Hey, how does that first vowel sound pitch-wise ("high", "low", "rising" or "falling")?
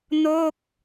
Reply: falling